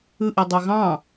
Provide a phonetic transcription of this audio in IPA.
ɯʔi dˤøɣɑ̃

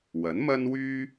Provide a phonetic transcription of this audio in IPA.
wɐ˨˥nmɐ˥nwyː˥

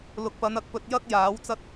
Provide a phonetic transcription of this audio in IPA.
lʊ˨k̚pɐ˨˧n ɐ˧k̚pɵ˧t̚ jɐ˥k̚ jaː˨˥wt͡sɐ˥t̚

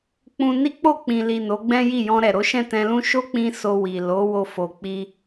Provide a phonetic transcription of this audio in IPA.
k͡pũ˧ ni˦k͡po˦˨k͡pĩ˨li˨ no˨˦ɡ͡bɛ̃˦ji˦˨ jɔ̃˧ɾɛ˨ ɾo˨˦ʃɛ̃˦˨ tɛ̃˧lũ˦ ʃo˦k͡pĩ˧ so˧ wi˨ lo˨˦ wo˧fo˨k͡pi˧

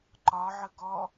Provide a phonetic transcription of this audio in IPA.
ǃɒʕə ɡɔ

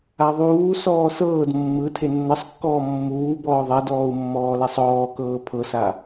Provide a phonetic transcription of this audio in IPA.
aðˤuː sɔːsɤːd mːɯ tʰenːɤsˤkːɔː mːuː bɔːðˤɛdɔːu̯mːɔː lɛsˤɔːkɤː pʰɤsa

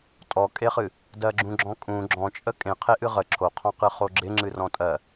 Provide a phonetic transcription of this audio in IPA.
tʼɔkʼeχɨ | dɜɡ͡ǁũɡ͡ǁɔ̃kʼũ ɡ͡ǁɔ̃t͡ʃʼə kʼẽ qʰeʔɨʁə ǁʰoqʰɔ̃qɨ χoɡ͡ǁɪŋ͡ǁɨ rɔ̃tʼɜ

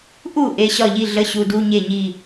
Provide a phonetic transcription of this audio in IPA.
ʔu˥˩ ʔe˩˧˩ɕɒ˥˩ʎi˥˩ ɮə˧˥˧ɕu˩˧˩du˧˥˧ ɲe˥˩ɲi˥˩

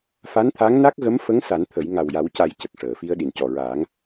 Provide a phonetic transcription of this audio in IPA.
fa˧˥nt̪ʰa˧˥ŋna˦˥k̚ɣə˧˥m fə˧˥ŋ sa˨˩˦nt̪ʰə˨˩˦j ŋa˨˩wja˨˩˦wca˨˩˦j cə˨˩k̚ʂəː˨˩˨fi˧ə̯ ɗi˨˩ncɔ˨˩ɹaː˨˩˦ŋ

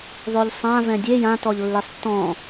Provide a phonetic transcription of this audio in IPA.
ðˤoʎsˤã vɛ̃dʲe jãtɔʎ lːesˤtːɔ̃

